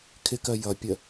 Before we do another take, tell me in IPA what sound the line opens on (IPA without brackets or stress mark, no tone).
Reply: kʰ